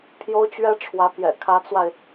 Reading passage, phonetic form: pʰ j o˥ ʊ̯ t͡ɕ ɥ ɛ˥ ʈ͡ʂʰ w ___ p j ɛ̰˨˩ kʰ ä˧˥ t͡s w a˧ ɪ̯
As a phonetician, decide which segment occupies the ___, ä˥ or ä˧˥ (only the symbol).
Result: ä˧˥